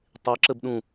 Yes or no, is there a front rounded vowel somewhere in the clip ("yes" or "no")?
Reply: no